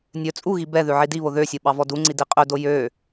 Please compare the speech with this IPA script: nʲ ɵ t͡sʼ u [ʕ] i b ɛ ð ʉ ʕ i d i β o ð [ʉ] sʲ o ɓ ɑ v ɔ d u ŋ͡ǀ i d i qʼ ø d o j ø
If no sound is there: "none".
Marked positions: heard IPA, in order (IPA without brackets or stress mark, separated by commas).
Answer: ɣ, ø